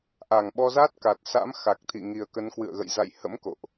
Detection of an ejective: absent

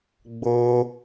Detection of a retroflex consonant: absent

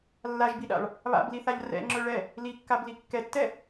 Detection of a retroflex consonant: present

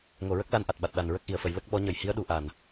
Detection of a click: absent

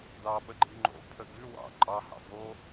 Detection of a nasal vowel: absent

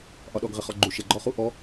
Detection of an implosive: present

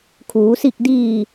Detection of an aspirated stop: present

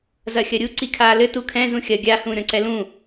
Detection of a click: present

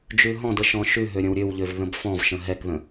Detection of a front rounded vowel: present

